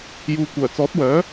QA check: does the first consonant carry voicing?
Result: yes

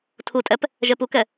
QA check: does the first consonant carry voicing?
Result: no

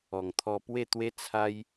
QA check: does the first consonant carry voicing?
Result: yes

